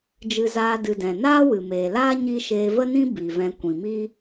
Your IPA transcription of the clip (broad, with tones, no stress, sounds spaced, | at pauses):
d͡ʒ ɨ˧ z aː˧ d ɨ˨ d ɛ̃˨ n aː˦ w ɨ˨ m eː˨ l aː˦ ɲ i˦ ʃ eː˧ v ə˦ n ĩ˦ b i˨ v ɛ̃˧ kʷ ĩ˨ m i˦